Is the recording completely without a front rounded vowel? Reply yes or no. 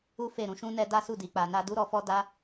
yes